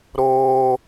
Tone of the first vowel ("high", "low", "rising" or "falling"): high